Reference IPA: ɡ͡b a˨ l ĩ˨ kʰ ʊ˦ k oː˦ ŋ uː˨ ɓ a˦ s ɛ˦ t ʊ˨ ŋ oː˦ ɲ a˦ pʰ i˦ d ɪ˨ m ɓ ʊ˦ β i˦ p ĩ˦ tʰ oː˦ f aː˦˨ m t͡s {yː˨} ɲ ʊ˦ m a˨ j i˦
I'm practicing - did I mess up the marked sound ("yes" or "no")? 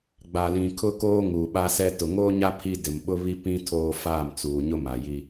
yes